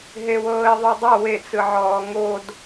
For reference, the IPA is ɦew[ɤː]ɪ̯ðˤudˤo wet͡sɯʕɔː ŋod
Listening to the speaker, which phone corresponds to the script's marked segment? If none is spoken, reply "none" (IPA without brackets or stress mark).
ɤː